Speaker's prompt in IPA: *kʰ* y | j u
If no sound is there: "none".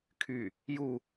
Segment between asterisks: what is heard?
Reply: kʰ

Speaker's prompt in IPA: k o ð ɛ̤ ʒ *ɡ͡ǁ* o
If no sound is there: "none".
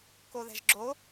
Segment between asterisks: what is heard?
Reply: ɡ͡ǁ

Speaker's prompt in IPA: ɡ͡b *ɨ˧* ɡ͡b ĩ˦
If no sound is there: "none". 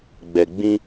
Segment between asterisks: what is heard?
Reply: ɛ˧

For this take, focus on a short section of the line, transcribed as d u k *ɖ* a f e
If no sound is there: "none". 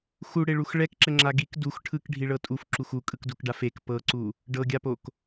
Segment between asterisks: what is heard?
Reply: ɖ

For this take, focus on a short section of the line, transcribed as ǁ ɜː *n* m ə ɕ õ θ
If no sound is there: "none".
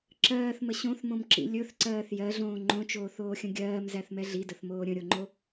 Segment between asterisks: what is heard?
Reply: θ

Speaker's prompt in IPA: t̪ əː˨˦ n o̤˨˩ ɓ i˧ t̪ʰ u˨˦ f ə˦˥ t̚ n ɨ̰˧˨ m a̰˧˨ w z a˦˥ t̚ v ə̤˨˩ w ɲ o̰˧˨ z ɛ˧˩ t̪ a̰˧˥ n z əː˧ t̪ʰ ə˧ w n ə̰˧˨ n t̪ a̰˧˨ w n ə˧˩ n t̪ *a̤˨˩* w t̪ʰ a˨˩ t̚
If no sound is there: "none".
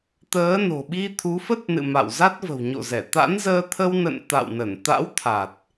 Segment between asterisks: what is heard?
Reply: a̰˧˥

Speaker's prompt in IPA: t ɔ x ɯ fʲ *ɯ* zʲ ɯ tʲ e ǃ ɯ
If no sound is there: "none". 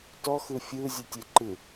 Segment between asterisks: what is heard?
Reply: ɯ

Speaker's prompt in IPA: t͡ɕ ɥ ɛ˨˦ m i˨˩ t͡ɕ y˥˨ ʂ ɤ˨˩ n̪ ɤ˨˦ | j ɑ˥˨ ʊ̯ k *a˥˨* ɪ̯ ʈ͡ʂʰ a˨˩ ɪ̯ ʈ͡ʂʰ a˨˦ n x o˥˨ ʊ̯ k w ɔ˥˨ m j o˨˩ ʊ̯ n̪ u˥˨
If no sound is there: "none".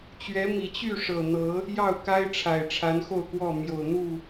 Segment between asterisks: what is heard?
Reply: a˦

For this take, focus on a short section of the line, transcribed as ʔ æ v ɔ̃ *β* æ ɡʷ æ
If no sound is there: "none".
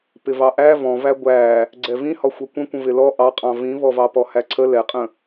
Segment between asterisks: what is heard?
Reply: v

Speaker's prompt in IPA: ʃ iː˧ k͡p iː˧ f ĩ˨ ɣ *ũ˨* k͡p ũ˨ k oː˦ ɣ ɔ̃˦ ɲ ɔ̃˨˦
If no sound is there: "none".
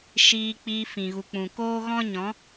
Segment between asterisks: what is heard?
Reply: u˨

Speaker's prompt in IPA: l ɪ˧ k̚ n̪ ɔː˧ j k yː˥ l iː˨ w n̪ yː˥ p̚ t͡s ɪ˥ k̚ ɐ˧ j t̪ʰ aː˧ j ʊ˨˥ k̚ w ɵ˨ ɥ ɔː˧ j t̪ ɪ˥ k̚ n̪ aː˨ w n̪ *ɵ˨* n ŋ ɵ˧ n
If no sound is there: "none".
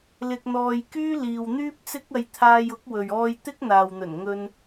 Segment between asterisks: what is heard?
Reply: ɵ˨˩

